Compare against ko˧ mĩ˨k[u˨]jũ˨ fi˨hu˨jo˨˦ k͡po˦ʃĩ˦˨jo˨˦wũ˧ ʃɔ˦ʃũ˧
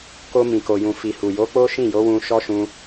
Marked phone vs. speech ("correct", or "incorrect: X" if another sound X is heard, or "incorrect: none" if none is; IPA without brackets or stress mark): incorrect: o˨